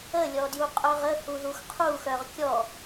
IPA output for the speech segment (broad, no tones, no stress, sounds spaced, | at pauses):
ə lʲ ɔ d j u qʼ œ ʁ ə h u ð u x qʰ u x œ ʁ kʲ ɔ